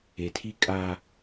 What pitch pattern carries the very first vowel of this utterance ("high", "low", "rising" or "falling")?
low